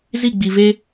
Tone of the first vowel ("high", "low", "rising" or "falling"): falling